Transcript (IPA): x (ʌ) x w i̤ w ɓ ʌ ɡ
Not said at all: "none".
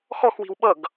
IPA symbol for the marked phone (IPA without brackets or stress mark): ɔ